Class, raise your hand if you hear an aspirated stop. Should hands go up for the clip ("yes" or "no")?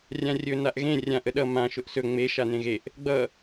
no